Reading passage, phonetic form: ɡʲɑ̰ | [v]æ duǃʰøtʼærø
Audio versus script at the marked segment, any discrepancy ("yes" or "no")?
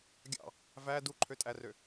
no